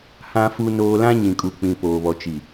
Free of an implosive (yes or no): yes